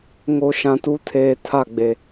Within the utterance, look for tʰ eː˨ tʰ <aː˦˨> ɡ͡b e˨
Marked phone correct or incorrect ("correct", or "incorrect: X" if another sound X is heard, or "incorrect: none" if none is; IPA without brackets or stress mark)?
incorrect: a˦˨